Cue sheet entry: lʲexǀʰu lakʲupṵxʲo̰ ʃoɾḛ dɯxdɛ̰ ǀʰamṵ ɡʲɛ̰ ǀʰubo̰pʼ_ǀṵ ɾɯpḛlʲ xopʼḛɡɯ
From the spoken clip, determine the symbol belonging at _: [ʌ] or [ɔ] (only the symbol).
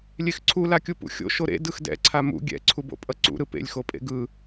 ʌ